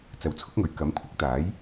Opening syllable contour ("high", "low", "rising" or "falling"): low